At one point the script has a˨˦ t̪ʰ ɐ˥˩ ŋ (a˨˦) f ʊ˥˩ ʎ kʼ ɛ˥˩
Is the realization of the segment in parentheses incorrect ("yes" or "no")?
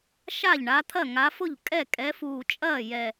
no